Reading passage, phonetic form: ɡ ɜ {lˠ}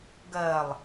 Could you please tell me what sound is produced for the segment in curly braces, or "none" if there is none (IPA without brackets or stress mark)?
lˠ